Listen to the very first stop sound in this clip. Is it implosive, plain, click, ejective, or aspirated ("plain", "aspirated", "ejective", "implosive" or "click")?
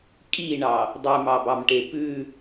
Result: ejective